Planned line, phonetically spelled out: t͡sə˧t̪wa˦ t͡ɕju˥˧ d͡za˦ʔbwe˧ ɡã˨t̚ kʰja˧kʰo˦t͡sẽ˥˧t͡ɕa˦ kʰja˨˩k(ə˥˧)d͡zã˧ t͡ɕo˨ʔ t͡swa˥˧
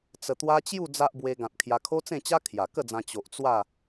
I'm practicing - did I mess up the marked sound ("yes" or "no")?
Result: no